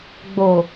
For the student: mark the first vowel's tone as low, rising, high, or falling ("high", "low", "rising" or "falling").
low